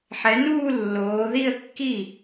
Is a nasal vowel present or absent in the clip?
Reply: absent